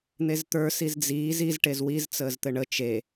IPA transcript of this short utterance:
n̪ e z t̪ ə˞ s i z d͡z iː z i z ʈ e z w i z t͡s əː z t̪ ɘ ɳ ə t͡ʃ e

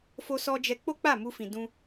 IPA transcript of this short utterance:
f o˧ s ɔ˧ d͡ʒ ɛ˧ k͡p o˦ k͡p a˦˨ m u˧ f ĩ˨ d ũ˧

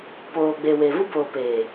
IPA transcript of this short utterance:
p oː˨ ɡ͡b e˨ w e˨ v u˦ b oː˨ p eː˨

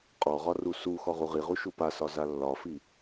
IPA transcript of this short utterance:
qʼ ɔ ʁ ɒ r u s u x ɔ ʁ u ʁ i ʁ u ʃ u p a s ɒ z a lː ɒ f i

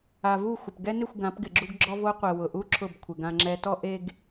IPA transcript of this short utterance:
a˨ v u˦˨ xʷ ɪ˨ p ɡ ɛ˦ n ɪ˦˨ xʷ ɡ ã˨˦ p ɡ ɪ˨ ɡ͡ǁ u˦ ɡ ɡ͡ǁ ɔ˦ v o˦ qʷ ɛ˨ w ʊ˨ ʔ u˦ ǁʰ ʊ˦˨ b kʷʰ ɪ˨ ɡ ã˦ ŋ͡ǁ ɛ˦ t ɔ˦ ʔ e˨ ɡ

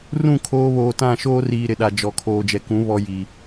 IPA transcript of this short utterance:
r ũ˦˨ kʰ oː˦ β oː˨ t ã˦˨ ʃ oː˦ r iː˨ ɾ ɪ˨ ɗ a˨ d͡ʒ ɔ˨ kʰ oː˨ d͡ʒ ɛ˨ k ũ˨˦ β ɔ˦ j i˨

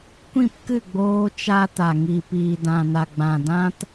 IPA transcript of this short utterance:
kʷ ĩ˦˨ p k ɨ˦˨ ɡ͡b oː˧ t͡ʃ a˧ t a˨ ŋ i˨ p iː˨ d ã˨ n a˨ ɡ͡b ã˨ d ã˧ t

